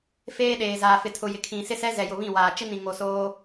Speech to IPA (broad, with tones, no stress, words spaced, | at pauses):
feː˦ɗeː˨zaː˨ fɪ˨tʰʊ˨ jɪ˨kʰĩ˨sɪ˦sɛ˦ zɛ˨jʊ˨βĩ˦˨waː˨ t͡ʃɪ˦nĩ˨ŋo˨ soː˦